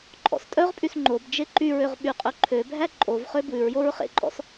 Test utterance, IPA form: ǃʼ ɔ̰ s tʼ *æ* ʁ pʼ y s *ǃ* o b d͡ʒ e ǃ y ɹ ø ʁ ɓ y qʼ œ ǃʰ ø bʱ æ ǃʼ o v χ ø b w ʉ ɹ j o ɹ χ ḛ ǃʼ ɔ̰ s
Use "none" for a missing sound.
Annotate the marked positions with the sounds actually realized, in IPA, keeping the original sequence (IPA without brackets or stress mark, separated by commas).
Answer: œ, ŋ͡ǃ